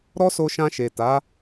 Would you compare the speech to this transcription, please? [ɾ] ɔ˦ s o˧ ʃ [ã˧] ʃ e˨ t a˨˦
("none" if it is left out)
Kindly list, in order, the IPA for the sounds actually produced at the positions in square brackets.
ɾ, ã˧

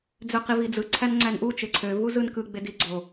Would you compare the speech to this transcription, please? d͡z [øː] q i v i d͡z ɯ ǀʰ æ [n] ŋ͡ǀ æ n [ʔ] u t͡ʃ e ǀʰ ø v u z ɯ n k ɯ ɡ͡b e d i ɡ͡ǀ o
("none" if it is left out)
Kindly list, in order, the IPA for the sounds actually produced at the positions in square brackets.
ø, n, ʔ

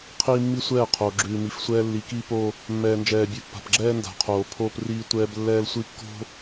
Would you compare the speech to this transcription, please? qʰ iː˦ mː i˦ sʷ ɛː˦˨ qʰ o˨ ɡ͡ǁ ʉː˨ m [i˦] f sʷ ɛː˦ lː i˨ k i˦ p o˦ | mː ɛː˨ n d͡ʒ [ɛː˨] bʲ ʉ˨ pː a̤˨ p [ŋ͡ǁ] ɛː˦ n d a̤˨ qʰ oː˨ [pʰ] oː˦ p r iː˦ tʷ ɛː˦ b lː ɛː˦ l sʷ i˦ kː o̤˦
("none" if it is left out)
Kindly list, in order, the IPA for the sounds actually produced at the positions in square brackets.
i˨, ɛː˨, ɡ͡ǁ, pʰ

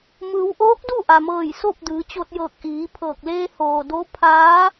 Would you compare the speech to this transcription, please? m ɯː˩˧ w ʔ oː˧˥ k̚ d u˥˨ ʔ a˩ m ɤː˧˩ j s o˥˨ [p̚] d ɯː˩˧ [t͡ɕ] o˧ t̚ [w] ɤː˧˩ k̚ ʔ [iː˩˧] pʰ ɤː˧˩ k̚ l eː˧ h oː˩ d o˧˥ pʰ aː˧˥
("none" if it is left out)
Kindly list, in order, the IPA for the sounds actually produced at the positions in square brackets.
p̚, t͡ɕ, j, iː˩˧

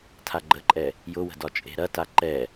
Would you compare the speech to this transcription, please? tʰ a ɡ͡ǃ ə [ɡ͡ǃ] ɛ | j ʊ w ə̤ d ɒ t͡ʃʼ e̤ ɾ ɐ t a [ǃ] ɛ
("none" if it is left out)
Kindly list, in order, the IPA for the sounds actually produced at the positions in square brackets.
ǃʼ, ǃ

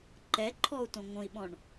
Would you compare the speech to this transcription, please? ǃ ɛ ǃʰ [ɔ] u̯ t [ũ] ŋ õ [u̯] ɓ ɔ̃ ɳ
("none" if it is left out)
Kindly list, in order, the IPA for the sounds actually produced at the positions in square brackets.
ɔ, õ, i̯

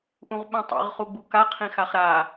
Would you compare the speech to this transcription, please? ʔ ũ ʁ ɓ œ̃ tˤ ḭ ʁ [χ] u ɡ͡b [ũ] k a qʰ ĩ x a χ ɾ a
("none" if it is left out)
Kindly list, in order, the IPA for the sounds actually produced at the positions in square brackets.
χ, u

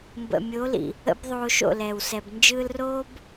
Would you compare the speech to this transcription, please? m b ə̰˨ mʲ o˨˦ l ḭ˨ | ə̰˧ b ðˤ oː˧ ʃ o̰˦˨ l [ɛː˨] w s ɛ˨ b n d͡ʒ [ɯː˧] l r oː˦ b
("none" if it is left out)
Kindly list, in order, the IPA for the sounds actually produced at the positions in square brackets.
ɛː˨, ɯː˧

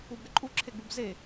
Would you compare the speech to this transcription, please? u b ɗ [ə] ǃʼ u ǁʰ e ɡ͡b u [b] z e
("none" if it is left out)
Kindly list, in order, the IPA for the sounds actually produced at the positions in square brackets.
ə, b

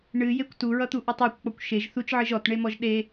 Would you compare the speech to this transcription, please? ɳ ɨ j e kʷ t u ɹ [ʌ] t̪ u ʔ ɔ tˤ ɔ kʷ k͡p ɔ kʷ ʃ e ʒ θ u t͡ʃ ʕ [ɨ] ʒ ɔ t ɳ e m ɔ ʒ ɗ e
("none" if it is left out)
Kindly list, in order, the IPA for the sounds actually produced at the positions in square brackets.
ʌ, ɨ

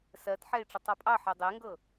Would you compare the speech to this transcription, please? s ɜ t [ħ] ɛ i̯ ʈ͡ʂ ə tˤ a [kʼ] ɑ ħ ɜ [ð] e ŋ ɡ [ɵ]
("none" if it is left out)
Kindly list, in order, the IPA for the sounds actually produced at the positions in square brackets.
ħ, pʼ, dˤ, ɤ

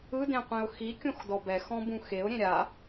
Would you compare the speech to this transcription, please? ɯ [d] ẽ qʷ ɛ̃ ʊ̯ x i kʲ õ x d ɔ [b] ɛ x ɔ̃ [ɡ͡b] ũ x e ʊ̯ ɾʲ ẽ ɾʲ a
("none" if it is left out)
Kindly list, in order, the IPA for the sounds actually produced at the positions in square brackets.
d, b, b

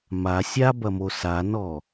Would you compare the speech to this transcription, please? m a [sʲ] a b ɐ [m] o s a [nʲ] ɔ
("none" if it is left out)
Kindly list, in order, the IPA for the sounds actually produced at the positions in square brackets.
sʲ, m, n

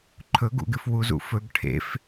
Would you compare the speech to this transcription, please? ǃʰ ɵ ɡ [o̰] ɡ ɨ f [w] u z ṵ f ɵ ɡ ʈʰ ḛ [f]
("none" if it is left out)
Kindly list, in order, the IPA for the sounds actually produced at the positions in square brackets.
ṵ, w, f

